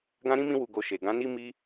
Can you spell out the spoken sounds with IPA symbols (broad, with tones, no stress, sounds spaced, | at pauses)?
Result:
ɡ ã˦ ɾ ĩ˦ m ĩ˦ w u˧ ɡ o˧ ʃ e˨ ɡ ã˨˦ n i˦ m i˦